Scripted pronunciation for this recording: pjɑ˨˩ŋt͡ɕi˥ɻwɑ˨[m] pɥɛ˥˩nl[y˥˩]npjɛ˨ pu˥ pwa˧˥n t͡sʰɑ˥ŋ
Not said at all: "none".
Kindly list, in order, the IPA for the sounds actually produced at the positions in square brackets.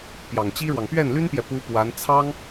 ŋ, y˥

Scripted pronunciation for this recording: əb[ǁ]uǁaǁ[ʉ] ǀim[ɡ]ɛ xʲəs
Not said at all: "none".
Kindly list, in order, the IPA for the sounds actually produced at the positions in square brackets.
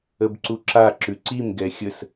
ǀ, ʉ, ɡ

